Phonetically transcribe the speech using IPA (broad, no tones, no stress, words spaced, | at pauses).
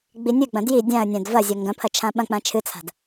ɡ͡binʲɨɡ͡bɐ̃ dji dʲãə̯nʲãd vɐzʲɐ ŋɡɐ̃pʰɐ t͡ʃʰãɓɐ̃k͡pã t͡ʃʰɨt͡sʰa̤d